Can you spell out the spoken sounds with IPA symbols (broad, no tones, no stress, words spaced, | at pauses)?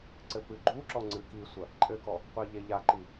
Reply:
ǀɘpɨɡ͡ǃuǁɔ ŋ͡ǀɨkisʷɐ | ǃʼɘkɔ | qʷiʎeʎaǃi